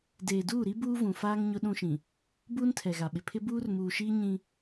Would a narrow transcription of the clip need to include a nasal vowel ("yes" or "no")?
yes